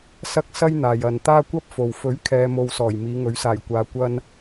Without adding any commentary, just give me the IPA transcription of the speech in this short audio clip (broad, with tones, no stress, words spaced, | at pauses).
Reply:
sɐ˥k̚ sɐ˥jn̪aː˨j ɐ˨n t̪aː˥kʷɐ˥p̚fo˨w fɵ˨˥ɥkʰɛː˨ mo˧wsɔː˨˩j miː˨˧ŋɵ˨˥ɥsaː˨˩jkʷaː˧ kʷɐ˥n